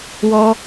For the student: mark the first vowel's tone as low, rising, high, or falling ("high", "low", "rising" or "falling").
high